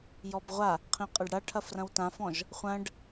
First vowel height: mid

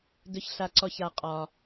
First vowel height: mid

